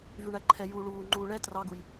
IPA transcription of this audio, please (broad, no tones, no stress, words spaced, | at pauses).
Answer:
vyɳæǃʰɛ juːɭuː ŋ͡ǃuːɭɛ trɑɡuj